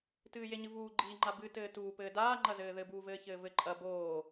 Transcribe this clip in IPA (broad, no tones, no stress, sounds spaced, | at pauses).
t ɨː j e ɲ ɨ v uː ɡ͡ǃ iː ŋ͡ǃ a b ɨ t ɘː t uː p ɘː d aː ŋ͡ǃ ɐ z ɘː ð ɘ b uː v ɘː ç ɘː v ɘ ǃʼ ɐ b oː